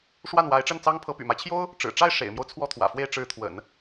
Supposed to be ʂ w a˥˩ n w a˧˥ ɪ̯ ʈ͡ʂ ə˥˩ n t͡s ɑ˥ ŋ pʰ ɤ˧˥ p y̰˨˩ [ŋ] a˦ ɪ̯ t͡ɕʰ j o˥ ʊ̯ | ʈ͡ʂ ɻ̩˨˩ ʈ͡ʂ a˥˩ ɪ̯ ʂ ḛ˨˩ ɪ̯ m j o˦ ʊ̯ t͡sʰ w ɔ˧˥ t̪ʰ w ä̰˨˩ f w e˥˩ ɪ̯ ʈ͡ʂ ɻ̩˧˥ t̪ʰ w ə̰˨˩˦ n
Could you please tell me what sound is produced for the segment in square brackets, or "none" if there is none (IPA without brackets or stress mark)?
m